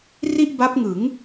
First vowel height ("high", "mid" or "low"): high